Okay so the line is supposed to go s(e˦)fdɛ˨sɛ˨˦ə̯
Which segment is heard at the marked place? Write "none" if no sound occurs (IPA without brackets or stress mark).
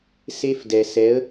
e˦